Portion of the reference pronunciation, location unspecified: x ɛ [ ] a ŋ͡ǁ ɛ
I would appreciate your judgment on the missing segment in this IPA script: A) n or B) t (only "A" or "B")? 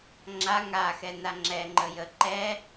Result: A